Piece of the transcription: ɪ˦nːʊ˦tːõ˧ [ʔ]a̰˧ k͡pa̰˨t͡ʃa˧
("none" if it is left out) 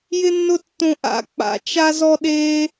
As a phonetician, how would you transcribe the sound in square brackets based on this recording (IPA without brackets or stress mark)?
ʔ